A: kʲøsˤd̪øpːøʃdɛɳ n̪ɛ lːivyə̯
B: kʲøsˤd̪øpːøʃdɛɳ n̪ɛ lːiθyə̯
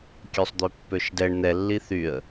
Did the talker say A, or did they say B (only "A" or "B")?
B